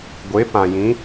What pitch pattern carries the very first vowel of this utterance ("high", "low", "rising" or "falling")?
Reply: rising